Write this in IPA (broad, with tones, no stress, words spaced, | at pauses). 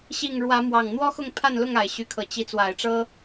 ɕi˥˨ŋ ɻwä˨˦mwɑ˨˩ŋ n̪wɔ˦xʊ˥˨ŋpʰa˥˨nlʊ˥˨ŋ a˨˩ɪ̯ɕy˨˦kʰɤ˨˩ t͡ɕi˨˦ t͡swa˨˩ɪ̯ʈ͡ʂɤ˦